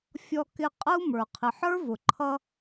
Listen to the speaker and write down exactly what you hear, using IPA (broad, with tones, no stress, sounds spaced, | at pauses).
fʲ ɔ˧ k ɪ˧ qʼ ə˦ u̯ m ə˞˨ qʰ ɪ˨ ħ ə˞˦ v ʊ˨ ǃʰ ʌ˧